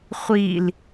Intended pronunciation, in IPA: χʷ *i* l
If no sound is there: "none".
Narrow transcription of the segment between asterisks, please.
i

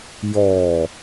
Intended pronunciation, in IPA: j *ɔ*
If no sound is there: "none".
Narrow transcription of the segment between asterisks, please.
ɔː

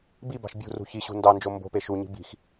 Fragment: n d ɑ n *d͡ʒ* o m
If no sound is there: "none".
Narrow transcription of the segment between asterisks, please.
d͡ʒ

